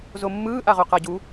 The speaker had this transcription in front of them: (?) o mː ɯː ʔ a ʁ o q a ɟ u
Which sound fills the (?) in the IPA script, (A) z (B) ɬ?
A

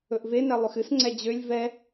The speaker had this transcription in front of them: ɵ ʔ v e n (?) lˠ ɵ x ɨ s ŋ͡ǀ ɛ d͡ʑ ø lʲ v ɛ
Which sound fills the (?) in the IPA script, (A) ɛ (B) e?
A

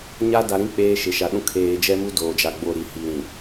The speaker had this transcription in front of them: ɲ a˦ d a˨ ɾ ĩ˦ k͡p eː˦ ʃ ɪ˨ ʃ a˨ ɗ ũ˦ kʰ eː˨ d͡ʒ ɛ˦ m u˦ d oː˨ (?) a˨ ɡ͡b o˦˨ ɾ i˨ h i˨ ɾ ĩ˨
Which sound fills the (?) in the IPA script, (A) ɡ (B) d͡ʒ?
B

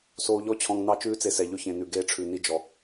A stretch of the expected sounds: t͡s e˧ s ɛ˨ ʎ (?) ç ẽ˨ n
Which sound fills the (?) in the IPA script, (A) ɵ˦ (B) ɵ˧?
B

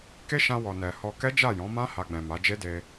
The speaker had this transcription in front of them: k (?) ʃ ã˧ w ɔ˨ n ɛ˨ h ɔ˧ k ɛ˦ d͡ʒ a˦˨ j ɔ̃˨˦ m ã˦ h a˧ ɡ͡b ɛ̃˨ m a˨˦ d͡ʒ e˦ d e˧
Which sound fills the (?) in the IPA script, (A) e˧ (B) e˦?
B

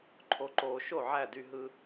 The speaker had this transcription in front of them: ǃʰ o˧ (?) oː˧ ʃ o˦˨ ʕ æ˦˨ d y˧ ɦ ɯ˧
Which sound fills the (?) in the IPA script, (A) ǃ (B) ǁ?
A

